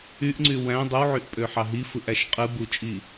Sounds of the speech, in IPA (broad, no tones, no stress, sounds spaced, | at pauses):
y ʔ ŋ͡ǀ y w æ̃ dˤ ɯ w ʕ y ʔ pʼ ø ħ ɑ ɦ i f ɯ ʔ æ ʃ qʼ ɯ b u t͡ʃʼ i